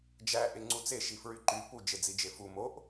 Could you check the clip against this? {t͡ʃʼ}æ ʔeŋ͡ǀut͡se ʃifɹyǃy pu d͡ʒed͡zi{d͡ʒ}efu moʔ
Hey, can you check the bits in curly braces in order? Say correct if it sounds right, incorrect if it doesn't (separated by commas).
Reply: incorrect, correct